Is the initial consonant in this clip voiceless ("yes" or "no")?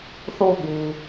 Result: yes